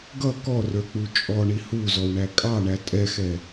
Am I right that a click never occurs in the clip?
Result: yes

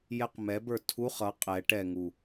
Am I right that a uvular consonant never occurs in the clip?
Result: no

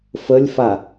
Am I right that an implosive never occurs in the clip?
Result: yes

